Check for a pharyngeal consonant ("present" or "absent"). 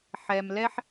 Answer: present